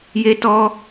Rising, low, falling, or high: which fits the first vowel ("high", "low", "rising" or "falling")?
high